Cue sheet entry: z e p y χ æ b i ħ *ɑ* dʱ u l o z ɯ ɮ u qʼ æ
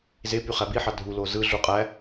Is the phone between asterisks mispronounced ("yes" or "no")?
no